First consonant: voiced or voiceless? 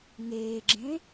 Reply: voiced